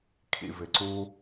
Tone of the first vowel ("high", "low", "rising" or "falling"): low